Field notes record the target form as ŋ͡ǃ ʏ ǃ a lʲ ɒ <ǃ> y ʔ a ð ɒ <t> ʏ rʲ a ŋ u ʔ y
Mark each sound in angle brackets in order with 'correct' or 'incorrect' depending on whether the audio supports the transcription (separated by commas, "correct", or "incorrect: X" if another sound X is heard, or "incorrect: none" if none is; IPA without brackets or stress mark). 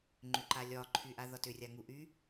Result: incorrect: ǃʰ, correct